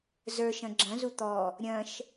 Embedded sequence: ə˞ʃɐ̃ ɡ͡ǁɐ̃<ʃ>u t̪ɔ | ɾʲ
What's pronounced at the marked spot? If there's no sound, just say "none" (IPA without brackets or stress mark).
z